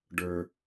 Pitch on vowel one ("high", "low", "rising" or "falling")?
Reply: high